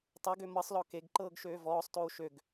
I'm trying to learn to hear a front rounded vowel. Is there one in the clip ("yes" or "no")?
yes